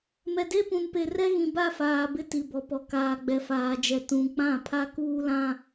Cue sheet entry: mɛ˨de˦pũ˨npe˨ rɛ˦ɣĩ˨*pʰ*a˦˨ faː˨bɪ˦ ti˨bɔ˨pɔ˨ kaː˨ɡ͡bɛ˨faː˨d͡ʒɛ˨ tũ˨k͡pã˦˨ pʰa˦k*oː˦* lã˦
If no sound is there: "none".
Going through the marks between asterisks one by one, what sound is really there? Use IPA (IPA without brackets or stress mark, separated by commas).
b, uː˦